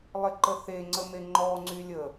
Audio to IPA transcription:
lˠ ɪ ǃ ə θ e ŋ͡ǀ ə m e ŋ͡ǃ ɔ ŋ͡ǀ y lʲ ə

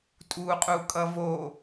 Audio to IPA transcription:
tʼ uː qʼ u kʼ ʌ v o

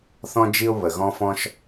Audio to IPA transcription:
θ ɔ̃˥ d͡ʒ i˥ ʊ̯ β ə˩ ɣ ɔ̃˥ f ɔ̃˥ ʃ

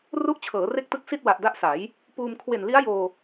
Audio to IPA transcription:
r u˥˩ ʔ t͡ɕʰ ɤː˩˦ r e˥˩ k̚ t ɯ˥˩ k̚ s i˥˩ t̚ w a˨˩ ʔ d a˦˥ ʔ s a˩˦ j | p uː˧ m kʰ w e˨˩ n l i˦˥ a̯ j oː˧

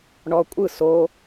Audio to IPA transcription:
ɳ ɔ kʷʼ ɯ s o

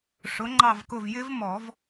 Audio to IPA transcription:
ʂ ʊ˨˥ ŋ͡ǃ ɑ˦˨ v k ʊ˦˨ v j ɪ˦ v m ɔ˨˩˦ v

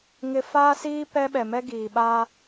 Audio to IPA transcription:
ŋ ɪ˦ f aː˦ s iː˦ p ɛ˦ ɓ ɛ˨ m ɛ˦ ɡ iː˨ ɓ a˦

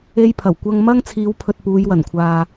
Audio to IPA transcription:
e˧ j pʰ ɐ˨˩ w kʷ ɐ˧ ŋ m ɐ˥ ŋ t͡sʰ iː˨˧ w pʰ ɵ˨ t̚ p uː˨˧ j w ɐ˨˩ n kʷʰ aː˨

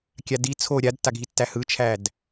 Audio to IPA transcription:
kʲ a d i t͡sʰ o ɾʲ a d tː a ɡʱ i tː æ h ɯ t͡ʃʰ æ d

